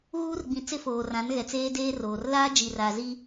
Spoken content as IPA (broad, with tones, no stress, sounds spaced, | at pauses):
ɣ uː˦ r ɡ͡b ĩ˨ t͡s ɪ˦ f oː˨ r ã˨˦ n ɣ ɛ˨ t͡s eː˦ d eː˦ r oː˨ r l aː˦ d͡ʒ i˨ r aː˨ z i˦